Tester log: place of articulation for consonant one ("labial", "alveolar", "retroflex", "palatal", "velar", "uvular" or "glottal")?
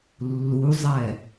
alveolar